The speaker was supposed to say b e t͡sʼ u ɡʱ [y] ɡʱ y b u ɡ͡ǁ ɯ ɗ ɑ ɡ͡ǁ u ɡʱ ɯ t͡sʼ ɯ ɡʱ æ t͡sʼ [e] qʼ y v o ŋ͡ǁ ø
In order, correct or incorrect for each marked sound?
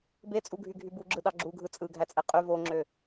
correct, correct

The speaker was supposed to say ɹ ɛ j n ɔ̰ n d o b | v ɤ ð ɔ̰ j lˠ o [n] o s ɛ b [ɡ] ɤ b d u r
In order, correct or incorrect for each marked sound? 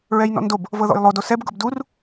incorrect, correct

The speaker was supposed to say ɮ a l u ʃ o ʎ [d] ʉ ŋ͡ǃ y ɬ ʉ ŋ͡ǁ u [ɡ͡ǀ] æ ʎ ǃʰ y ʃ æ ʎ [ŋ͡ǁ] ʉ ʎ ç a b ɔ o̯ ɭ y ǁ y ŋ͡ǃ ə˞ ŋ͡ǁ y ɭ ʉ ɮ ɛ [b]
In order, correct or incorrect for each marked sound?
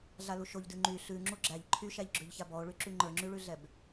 correct, incorrect, incorrect, correct

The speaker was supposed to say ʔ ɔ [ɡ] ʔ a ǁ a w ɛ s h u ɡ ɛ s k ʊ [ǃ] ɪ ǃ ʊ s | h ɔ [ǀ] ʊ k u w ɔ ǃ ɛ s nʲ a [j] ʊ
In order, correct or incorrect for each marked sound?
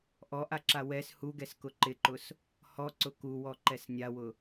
incorrect, correct, correct, incorrect

